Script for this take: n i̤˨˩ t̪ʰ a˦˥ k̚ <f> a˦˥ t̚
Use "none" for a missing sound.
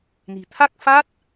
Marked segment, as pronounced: f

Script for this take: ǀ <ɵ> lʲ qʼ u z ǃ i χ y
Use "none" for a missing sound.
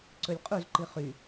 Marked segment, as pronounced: ɵ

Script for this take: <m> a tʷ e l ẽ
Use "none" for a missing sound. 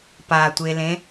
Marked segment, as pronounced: p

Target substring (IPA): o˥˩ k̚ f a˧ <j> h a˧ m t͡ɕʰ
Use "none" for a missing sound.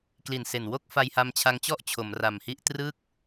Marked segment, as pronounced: j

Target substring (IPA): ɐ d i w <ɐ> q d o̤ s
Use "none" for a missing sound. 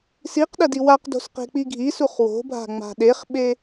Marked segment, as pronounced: a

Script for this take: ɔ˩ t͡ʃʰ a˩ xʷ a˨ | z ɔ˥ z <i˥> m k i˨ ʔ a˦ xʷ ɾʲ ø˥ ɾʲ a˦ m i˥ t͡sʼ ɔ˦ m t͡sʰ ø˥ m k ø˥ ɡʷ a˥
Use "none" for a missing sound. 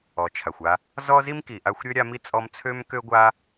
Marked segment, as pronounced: i˥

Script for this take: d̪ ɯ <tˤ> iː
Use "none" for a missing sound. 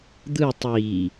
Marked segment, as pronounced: tˤ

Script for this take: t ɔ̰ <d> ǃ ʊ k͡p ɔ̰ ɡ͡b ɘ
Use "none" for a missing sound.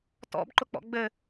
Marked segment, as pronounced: b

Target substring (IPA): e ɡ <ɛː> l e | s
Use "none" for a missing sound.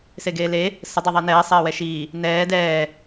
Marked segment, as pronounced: eː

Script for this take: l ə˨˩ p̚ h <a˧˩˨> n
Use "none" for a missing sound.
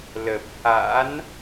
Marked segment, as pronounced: a̰˧˥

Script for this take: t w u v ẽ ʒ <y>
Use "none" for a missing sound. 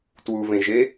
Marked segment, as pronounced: e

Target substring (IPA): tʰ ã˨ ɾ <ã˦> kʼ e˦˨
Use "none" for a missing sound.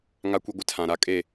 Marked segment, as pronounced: a˦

